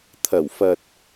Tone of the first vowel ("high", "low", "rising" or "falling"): low